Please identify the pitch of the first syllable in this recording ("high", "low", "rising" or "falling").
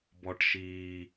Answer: low